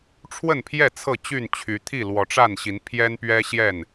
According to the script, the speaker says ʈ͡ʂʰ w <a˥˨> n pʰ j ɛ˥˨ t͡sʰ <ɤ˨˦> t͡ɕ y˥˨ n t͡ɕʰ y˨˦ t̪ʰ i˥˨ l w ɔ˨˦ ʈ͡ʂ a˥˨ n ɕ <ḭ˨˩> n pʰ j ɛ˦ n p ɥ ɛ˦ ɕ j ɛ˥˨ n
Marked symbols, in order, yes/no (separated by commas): no, no, no